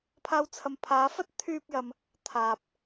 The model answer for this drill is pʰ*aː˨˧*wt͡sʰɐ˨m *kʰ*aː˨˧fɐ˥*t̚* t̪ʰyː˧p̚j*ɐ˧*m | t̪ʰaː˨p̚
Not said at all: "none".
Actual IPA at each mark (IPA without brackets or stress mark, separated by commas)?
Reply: aː˧, pʰ, t̚, ɐ˨